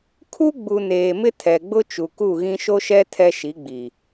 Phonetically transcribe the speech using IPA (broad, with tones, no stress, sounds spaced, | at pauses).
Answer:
kʰ u˦ ɡ͡b u˨ n eː˨ m ɪ˦ tʰ ɛ˨ ɡ͡b ʊ˦ t͡ʃ u˨ k u˦˨ ɣ ĩ˦ ʃ o˦ ʃ ɛ˦ tʰ ɛ˦ ʃ i˨˦ ɡ͡b i˨